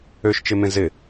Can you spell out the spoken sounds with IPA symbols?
ø ʃ t͡ʃ ɪ m ẽ z ɪ

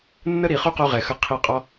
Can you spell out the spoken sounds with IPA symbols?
nː ə˦ ɾ i˨ χ u˦ q u˧ ʁ ɛ˨ x ə˧ qʰ i˧ qʼ ɔ˦

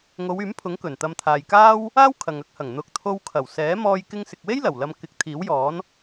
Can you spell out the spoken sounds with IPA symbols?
ŋ o˨˧ w yː˨˥ m pʰ ʊ˨˥ ŋ k ɵ˨˩ n t̪ ɐ˧ m t̪ʰ aː˨ j k aː˥ w | aː˥ w kʰ ɐ˨ ŋ ɐ˧ k̚ h ɐ˨˩ ŋ n̪ ʊ˨˥ k̚ t̪ʰ o˧ w kʰ ɐ˨˩ w s ɛː˨˥ m ɔː˧ j k ɪ˧ ŋ s ɪ˨ k̚ w e˥ j l ɐ˨˩ w l ɐ˧ m k ɪ˨˥ k̚ t̪ʰ iː˨˥ w j ɔː˨˥ n

